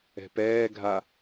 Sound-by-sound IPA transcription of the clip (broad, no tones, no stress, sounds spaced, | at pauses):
ɛ̤ p ɛː ɡʱ a